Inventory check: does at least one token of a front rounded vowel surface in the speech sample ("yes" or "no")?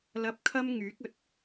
yes